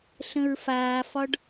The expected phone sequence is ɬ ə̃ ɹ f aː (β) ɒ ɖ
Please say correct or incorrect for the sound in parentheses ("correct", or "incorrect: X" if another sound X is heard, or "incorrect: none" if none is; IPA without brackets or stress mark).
incorrect: f